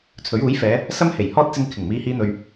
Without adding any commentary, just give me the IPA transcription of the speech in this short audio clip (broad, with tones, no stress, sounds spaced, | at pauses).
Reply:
t͡sʰ ɵ˨˥ ɥ uː˨˥ j f ɛː˨˧ | s ɐ˥ m h e˨˩ j h ɔː˥ t̚ t͡s ɪ˧ ŋ kʰ ɪ˨˩ ŋ m iː˨˧ h iː˨˧ n̪ ɵ˨ ɥ